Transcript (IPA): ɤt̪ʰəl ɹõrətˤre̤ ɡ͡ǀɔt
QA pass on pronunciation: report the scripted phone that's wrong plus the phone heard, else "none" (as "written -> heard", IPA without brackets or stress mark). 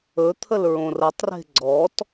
ɤ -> ɵ